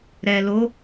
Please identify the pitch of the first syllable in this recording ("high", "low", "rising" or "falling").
low